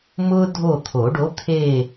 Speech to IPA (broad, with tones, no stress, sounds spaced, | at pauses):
m ʊ˦ dʱ o˦˨ t̪ʰ o˨˩˦ ɖ o˩˥ t̪ʰ e˦˨